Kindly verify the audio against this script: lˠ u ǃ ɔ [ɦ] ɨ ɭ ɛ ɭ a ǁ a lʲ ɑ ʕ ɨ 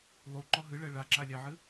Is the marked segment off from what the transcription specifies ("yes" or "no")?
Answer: no